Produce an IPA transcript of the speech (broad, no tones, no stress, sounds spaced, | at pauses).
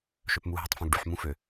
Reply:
ʃ œ p m u ɦ i tˤ f œ̃ ɡ ɖ y ħ m ũ f ø